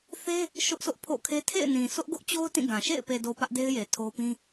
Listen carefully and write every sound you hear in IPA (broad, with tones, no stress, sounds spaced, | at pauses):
θ e˦ | ʃ ʊ˦ ʔ sʰ ʊ˦ ʔ pʰ o̰˦˨ kʰ e˦ tʰ ḛ˦˨ ɪ̯ n ĩ˨ sʰ ʊ˦ ʔ ɡ ʊ˦ ʔ t͡ɕ o˦ ʊ̯ t ĩ˦˨ ɡ ã˨ ʃ ḛ˦˨ ɪ̯ p e˨ d o˨ p ä˦ ʔ d e˦ ɪ̯ j e˨ tʰ o˦ p ĩ˦